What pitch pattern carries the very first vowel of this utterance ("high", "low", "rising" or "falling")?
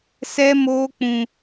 high